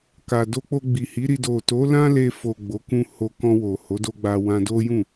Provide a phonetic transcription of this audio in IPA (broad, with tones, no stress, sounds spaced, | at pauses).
k a˨ d o˧ k͡p o˧ ɡ͡b i˨ h i˨˦ ɾ i˧ d o˨ t o˨˦ l ã˦ l e˧ f o˨ ɡ͡b o˨˦ k ũ˧ h o˧ k ɔ̃˧ w o˨ h o˨˦ d o˧ ɡ͡b a˧ w ã˧ d o˦ j ũ˦˨